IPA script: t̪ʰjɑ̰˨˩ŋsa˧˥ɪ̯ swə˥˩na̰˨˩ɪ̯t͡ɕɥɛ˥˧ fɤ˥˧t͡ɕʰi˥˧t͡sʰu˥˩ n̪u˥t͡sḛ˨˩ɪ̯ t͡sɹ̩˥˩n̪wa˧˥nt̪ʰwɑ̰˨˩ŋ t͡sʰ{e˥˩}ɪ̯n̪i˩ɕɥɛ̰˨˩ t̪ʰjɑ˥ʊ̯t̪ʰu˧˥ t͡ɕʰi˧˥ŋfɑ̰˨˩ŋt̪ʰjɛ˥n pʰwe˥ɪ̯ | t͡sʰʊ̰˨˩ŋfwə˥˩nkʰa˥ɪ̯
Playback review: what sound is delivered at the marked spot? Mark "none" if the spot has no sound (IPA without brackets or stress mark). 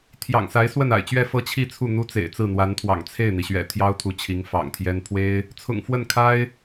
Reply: e˥˩